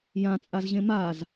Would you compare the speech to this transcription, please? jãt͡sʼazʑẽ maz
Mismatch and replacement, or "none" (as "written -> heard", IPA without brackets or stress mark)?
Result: none